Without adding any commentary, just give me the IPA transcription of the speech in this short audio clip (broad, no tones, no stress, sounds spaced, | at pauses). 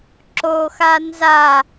ǁ o x a n z a